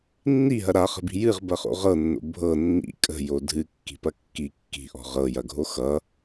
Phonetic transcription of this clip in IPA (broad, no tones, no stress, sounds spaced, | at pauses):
nː i ɦ ɐ ɾ a χ ə̤ b i̤ j ɨ ʁ b ɐ χ o̰ ʁ ɤ nː o̰ bʱ ɤ nː ḭ kʼ ə̤ j o dʱ ɨ kː i̤ p ɐ kː i kː i̤ ʔ ɔ̤ ʁ ɤ j ɐ ɡʱ o x ʌ